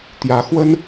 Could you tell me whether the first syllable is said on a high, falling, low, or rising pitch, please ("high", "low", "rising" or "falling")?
rising